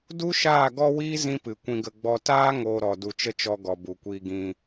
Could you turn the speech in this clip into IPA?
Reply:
du˦ʃaː˦˨ ɡɔ˦wiː˦ zĩ˦pɨ˨kʷĩ˧ɡə˧ ɡ͡bɔ˧ taː˦ ŋoː˧ɾɔ˨ du˨t͡ʃə˦t͡ʃɔ˧ ɡɔ˨bu˨ kʷiː˧ ɡĩ˧

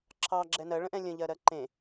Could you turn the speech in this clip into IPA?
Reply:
ǁʰɑɡ͡ǁɛ nɜɭə̃ʔɛ̃ lʲə̃ʎɜɾɜ ǃẽ

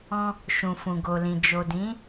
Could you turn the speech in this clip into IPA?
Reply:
ɔ̃˧ | ʃũ˨ fũ˨ɡo˨lĩ˨ d͡ʒo˨dĩ˨˦

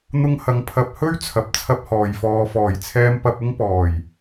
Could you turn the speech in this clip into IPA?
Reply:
n̪ʊ˧ŋhɐ˨˧ŋ pʰɐ˨p̚hɵ˥ɥ t͡sʰɐ˨p̚t͡sʰɐ˧p̚hɔː˨j fɔː˨fɔː˨˩jt͡sʰɛː˧m pɐ˧p̚ʊ˥ŋpɔː˨˩j

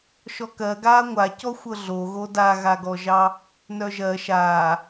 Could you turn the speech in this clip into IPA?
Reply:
ʃɔkɜɡaː ŋʷacɔ xʷɤɮoɣo daɣaɡɔʒɑ | nœʒɜ ʃaː

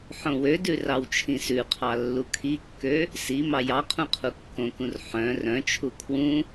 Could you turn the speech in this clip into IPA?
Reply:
ħõwødʉ rɑwt͡ʃʰĩsʉqʰɑ lːukʰikːø | si mɑjɑqʰũ qʰukːõkũr ħœ̃ rœ̃t͡ʃʰu kʰwũ

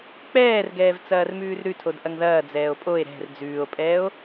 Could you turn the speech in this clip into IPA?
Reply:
k͡pɛːrɡɛːv t͡sɐːrmʉːrɾʉtʰod ʔɐŋðɐːd͡zɛːo̯ pʼoe̯ ɾɛ̤r d͡zʉːo̯pʼɛːo̯

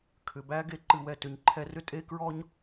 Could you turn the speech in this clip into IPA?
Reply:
kʰʏ˩bæ˦ ɡe˨ǃɨ˨wɛ˨ tʏ˩ɲ ǃʰɛ˨rʏ˦ tʼe˥kɹɔ˥ɲ

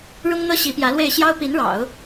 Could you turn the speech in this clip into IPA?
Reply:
ɻʊ˥ŋ n̪ɤ˥ ɕi˧˥pjä˧˥lwe˥˩ɪ̯ ɕjɑ˥ʊ̯pi˧˥nɻɑ̰˨˩˦ʊ̯

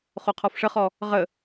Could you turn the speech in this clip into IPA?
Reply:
χoqʰɔfʂəχɔ | ʁə

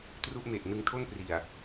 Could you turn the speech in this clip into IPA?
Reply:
tru˥˩ʔme˨˩ʔ nɯ˧ŋtʰo˥˩npri˨˩a̯

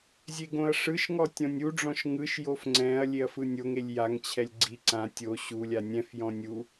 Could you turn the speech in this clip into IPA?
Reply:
zʲeɡõɐ̯ʂɯʃŋɔ tʲɔ̃nʲuɖ͡ʐɔ̃ʃ ŋɯʃjof ŋ͡ǀɛ̃ɐ̯ lʲeɐ̯fɯnʲoŋelʲ jaŋt͡ɕʰɛlʲ ɡ͡ǀi ǀã tʲo ɕulʲa nʲɛ̃fjɔ̃ nʲu

